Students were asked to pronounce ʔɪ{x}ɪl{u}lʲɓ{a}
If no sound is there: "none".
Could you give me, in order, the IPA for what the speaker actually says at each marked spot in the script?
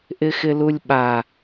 x, u, a

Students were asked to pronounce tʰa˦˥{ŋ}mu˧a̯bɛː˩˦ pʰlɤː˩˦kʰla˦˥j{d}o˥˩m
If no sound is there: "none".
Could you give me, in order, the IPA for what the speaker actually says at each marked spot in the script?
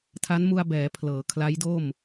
n, d

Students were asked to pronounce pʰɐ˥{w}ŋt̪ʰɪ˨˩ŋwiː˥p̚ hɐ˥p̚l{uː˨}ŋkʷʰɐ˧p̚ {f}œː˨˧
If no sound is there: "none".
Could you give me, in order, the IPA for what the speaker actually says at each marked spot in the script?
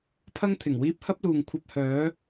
none, uː˨, h

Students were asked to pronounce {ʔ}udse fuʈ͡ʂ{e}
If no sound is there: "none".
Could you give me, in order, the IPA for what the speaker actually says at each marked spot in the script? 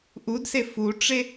ʔ, e

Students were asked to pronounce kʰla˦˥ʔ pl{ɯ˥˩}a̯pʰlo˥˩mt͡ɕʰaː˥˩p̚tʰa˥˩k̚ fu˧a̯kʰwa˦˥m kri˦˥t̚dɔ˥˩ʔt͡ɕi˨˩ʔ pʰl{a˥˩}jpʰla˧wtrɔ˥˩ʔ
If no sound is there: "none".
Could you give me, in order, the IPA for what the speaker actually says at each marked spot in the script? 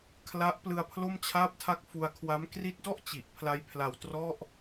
ɯ˧, a˦˥

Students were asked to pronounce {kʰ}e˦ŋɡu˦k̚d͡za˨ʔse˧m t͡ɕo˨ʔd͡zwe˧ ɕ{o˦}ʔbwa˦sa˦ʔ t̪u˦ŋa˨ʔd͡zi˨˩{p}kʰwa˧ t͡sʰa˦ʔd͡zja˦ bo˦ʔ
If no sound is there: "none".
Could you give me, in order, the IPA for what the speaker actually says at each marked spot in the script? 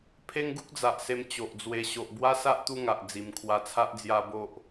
pʰ, o˨, m

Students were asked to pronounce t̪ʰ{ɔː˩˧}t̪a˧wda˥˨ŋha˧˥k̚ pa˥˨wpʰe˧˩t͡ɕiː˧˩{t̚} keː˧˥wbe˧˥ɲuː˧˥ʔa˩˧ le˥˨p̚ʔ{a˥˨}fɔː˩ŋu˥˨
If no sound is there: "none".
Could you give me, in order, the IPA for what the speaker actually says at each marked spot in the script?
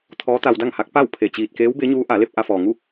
ɔː˧˥, t̚, a˧

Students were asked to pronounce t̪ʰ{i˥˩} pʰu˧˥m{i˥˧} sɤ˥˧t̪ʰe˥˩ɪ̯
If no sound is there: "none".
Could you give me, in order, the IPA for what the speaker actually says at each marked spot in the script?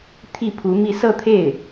i˥˩, i˥˧

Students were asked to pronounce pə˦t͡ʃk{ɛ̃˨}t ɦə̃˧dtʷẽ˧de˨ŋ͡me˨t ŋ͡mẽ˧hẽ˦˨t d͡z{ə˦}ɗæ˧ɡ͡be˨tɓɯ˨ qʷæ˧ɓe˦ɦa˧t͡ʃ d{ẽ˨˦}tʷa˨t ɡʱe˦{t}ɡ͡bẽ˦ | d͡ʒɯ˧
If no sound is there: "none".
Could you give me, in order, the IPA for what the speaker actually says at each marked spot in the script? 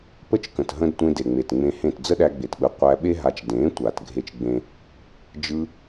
ə̃˨, ə˦, ẽ˨˦, t͡ʃ

